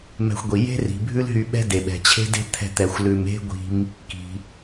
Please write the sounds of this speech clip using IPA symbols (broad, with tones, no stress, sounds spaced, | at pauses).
m ɛ̤˧ xʷ ɡʷ i˩ j e̤˥ r i̤˩ bʱ ʉ˥ l ɦ y˧ ɓ ɛ̤˥ d e˩ ɓ ɛ̤˩ t͡ɕʰ e̤˥ d e̤˥ t̪ʰ ɛ̤˧ t̪ ɛ˩ xʷ l ʉ˩ m e̤˥ ɡʷ i̤˧ m | k i̤˩